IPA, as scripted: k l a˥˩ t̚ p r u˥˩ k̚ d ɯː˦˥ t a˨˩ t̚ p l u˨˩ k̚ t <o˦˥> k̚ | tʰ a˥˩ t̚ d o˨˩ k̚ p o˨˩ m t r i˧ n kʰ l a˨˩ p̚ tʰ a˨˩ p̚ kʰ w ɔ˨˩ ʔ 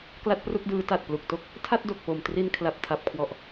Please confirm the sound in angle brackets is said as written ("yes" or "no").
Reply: yes